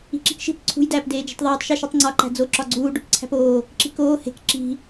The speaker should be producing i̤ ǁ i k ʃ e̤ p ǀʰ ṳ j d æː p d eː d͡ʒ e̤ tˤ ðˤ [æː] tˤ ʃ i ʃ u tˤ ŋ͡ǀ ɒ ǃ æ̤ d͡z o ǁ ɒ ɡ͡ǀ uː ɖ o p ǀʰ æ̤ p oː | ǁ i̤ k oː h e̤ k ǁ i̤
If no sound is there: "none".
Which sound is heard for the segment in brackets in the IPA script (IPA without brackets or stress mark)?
æː